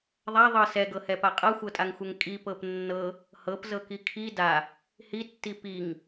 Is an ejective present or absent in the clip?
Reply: present